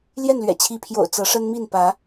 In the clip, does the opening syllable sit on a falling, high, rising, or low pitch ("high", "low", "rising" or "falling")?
falling